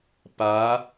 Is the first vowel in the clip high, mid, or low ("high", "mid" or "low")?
low